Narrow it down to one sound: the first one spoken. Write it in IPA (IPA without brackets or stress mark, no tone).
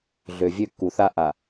ɮ